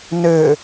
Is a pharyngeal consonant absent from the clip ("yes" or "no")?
yes